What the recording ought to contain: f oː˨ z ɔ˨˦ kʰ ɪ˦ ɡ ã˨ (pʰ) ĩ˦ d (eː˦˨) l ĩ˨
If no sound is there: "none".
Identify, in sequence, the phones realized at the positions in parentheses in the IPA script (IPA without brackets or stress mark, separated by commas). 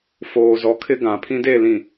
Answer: pʰ, e˦˨